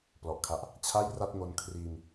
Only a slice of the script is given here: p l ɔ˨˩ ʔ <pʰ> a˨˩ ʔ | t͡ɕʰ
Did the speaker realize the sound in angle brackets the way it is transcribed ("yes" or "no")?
no